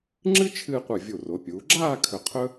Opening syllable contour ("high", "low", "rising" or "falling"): high